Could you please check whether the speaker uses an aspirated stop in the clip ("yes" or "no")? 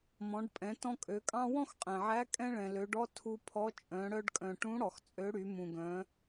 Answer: yes